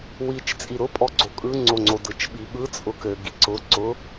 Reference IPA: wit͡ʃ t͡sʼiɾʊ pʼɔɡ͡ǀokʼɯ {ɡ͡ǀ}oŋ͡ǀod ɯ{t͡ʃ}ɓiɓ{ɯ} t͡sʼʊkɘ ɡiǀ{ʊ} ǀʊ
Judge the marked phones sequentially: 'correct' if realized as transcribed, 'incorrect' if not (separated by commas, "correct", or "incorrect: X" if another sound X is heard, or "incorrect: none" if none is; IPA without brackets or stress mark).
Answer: incorrect: ŋ͡ǀ, correct, correct, correct